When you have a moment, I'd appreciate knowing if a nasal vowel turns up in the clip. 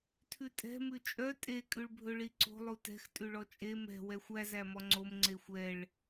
no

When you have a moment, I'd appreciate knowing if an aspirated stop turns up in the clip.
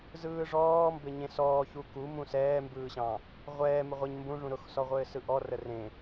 no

